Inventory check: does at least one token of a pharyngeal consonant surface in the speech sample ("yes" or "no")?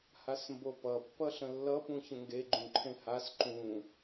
no